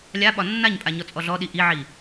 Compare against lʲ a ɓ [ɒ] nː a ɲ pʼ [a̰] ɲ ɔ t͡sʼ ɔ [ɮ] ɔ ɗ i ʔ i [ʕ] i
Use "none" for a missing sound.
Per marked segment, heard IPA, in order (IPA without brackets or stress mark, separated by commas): ɒ, a, ɮ, ʕ